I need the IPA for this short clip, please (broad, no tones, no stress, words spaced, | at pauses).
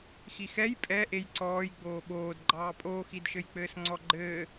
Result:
xixɛj pʼɛ ʔejǀɔːj ɡ͡boːɓoːd ɡ͡ǃɑːpʼoːxidʃɘj k͡pɘːsŋ͡ǀɔɡ͡ǃɘː